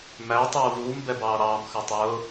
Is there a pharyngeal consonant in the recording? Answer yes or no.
no